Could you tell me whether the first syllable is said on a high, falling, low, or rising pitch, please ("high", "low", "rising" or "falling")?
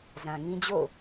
low